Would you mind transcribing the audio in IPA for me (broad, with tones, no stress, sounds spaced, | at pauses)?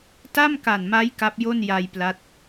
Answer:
t a˥˩ m k a˨˩ n m a˦˥ j k a˦˥ p̚ j o˥˩ n j a˧ j p l a˦˥ t̚